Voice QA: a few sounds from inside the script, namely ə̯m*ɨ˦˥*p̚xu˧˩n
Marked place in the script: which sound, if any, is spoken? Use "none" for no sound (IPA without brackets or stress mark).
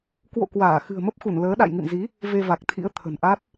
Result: ə˦˥